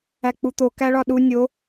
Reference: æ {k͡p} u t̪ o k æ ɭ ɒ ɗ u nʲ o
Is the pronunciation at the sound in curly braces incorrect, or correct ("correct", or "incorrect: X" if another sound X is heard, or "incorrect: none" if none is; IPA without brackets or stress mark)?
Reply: correct